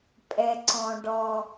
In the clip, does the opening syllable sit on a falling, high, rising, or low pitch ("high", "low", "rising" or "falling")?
low